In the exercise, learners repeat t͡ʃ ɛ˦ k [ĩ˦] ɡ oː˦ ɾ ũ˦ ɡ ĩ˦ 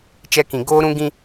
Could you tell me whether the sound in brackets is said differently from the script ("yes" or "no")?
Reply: yes